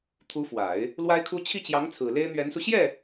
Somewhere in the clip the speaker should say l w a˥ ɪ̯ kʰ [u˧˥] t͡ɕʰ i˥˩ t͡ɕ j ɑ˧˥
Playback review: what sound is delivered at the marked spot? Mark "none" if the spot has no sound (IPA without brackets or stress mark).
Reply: u˥